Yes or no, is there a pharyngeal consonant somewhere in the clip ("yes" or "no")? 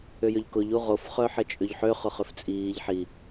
yes